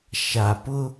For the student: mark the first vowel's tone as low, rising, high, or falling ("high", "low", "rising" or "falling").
low